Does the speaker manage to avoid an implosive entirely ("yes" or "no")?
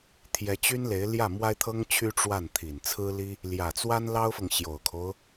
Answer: yes